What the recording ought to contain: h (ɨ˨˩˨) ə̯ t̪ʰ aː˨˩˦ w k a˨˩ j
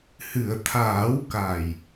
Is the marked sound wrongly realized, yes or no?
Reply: no